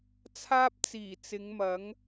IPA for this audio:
t͡sʰ aː˥ p̚ t͡s iː˨˩ t͡s ɪ˨˧ ŋ m ɐ˨˥ ŋ

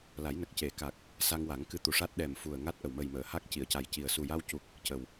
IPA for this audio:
l a˨˩˦ j n ə˨˩ k̚ c e˨˩˦ k a˨˩ k̚ | s a˧ ŋ w a˨˩˦ ŋ k ɨ˧ t̪ u˨˩ ʂ a˦˥ t̚ ɗ ɛ˨˩ m f u˨˩ ə̯ ŋ a˦˥ t̚ ʔ ə˨˩ w m ə˨˩ j m əː˨˩˨ h a˦˥ k̚ c i˨˩˨ ə̯ c a˨˩ j c i˨˩ ə̯ s u˨˩ j a˧ w c u˨˩ k̚ | c ə˨˩ w

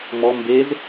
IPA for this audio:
m ɔ m b e z

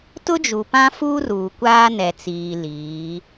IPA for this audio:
t ʊ˦ d͡ʒ u˨ p ã˦ f uː˦ r uː˨ kʷ aː˦ n ɛ˨ t͡s iː˨ l iː˨˦

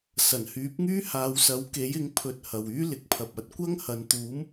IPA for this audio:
s ɐ˨˩ n h yː˨˥ p̚ ŋ yː˥ h aː˨˧ w s ɐ˨˥ w k e˨˥ j ɪ˨˥ ŋ pʰ ɵ˧ t̚ h ɐ˨ w yː˥ l ɪ˨ k̚ pʰ ɐ˨ p̚ ɐ˧ t̚ kʷ ɐ˥ ŋ h ɐ˨˧ n t̪ uː˨˥ m

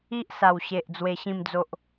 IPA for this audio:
i˦ ʔ s a˨˩ w ɕ e˨ ʔ d͡z w e˧ ɕ ĩ˥˧ m d͡z o˦ ʔ

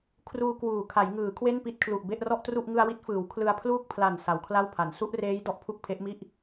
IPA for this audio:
kʰ r uː˧ k w uː˨˩ kʰ a˩˦ j ŋ ɯː˩˦ kʰ w e˥˩ n p i˥˩ t̚ kʰ l u˨˩ ʔ b e˥˩ ʔ r ɔ˥˩ ʔ t r u˥˩ ʔ ŋ ɯ˧ a̯ w i˦˥ t̚ f ɯː˩˦ w kʰ l ɯ˧ a̯ pʰ l uː˥˩ k̚ pʰ l a˨˩ n s a˩˦ w kʰ l a˥˩ w pʰ a˩˦ n s u˦˥ ʔ r eː˦˥ j d ɔ˦˥ ʔ pʰ u˥˩ k̚ pʰ e˦˥ ʔ m i˥˩ ʔ

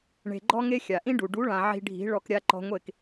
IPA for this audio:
ɳ e̤˨ ɡ͡ǃ ɔ˦ ŋ e˦ xʲ a˨ ʔ ĩ˦ ɖ u˨ ɖ u˨˦ ɭ ã˨ ʕ i̤˧ ɖʱ i̤˨˦ ɭ ɔ˧ k ɾʲ a˧ ǃ ɔ̤˧ ŋʷ e˦˨ k

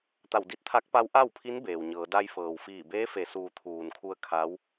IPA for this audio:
t̪ a˧˩ w d i˧ t̚ t̪ʰ a˧˥ k̚ p a˧˥ w ʔ a˥˨ w pʰ i˧˥ n b eː˩ w ɲ ɤː˩˧ d a˧ j f ɤː˩ w f iː˧˩ b eː˧˥ f e˩˧ s uː˩˧ t̪ʰ uː˩ n kʰ u˧ ə̯ kʰ a˧˥ w

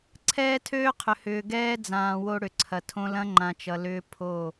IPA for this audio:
ǀʰ ɛː˦ tʰ øː˦ qʰ ʏ˨ h ʏː˨ ɡ ɛː˦ d͡z ãː˨ w o˦ ɽ ʏ˨ ǀʰ ɐ˨ tʰ õ˦ l ɐ̃˦ ŋ͡ǃ ã˨ t͡ʃ ʌ˨ l ʏː˦ pʰ o˦˨

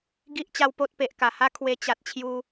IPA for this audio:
ɡ i˦ ʔ t͡ɕ a˦ w p o˦ t̚ p e˨ ʔ k a˨˩ h a˦ kʰ w e˧ t͡ɕ a˨ t̚ t͡ɕʰ j u˧

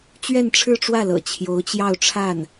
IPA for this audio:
t͡ɕ ɥ ɛ˥˧ n ʈ͡ʂʰ ɻ̩˥˧ ʈ͡ʂ w ä˥˩ l ɤ̰˨˩ t͡ɕʰ j o˧˥ ʊ̯ t͡ɕ j ɑ˥˧ ʊ̯ ʈ͡ʂʰ a˥˩ n

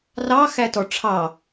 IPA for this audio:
r ɑ x æ t ɔ ʈ͡ʂʰ ɑ

